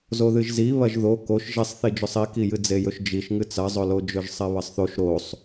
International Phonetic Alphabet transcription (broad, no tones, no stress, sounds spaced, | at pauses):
z o ð ɨ ʒ z i β ɐ ʒ ð o k o ʃ ʒ e sˤ θ i d͡ʒ ɵ sˤ i k i j ɨ d͡z e j ɵ ʃ d͡ʒ i ʃ ŋ ɨ t͡s ɐ zˤ ɵ l o d͡ʒ ɵ ʒ sˤ e β ɐ sˤ θ o ʃ ɾ o sˤ